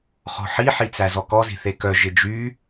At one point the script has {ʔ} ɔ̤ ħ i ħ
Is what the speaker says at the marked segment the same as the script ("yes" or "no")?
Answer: no